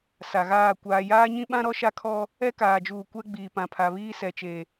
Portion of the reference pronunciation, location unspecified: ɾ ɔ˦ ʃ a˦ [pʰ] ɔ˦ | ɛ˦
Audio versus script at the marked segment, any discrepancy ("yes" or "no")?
yes